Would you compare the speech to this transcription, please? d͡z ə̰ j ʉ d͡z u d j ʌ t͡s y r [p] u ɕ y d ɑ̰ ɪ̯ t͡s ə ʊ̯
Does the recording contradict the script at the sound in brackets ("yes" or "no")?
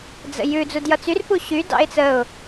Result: no